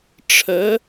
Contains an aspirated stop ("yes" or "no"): yes